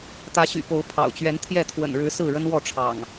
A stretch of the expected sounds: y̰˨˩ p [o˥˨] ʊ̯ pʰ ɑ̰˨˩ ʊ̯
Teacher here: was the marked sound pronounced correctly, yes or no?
no